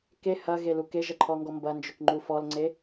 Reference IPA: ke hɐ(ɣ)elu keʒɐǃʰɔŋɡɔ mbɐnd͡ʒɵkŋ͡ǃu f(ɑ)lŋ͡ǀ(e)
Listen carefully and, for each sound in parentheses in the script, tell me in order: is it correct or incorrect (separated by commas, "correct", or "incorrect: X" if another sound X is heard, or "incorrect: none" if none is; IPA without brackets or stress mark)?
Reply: correct, incorrect: ɔ, correct